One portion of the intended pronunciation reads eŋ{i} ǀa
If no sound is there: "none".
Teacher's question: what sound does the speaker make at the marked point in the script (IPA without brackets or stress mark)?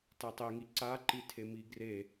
i